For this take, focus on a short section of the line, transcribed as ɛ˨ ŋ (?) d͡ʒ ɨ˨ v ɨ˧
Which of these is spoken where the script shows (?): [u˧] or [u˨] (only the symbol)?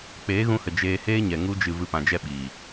u˧